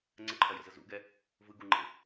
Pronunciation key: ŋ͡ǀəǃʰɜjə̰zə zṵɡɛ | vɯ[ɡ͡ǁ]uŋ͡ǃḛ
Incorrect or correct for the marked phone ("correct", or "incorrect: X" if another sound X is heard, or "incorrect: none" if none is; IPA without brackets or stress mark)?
incorrect: ɡ